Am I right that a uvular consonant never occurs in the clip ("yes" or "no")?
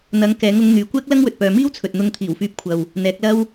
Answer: yes